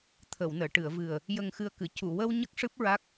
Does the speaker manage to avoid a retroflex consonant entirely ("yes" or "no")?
no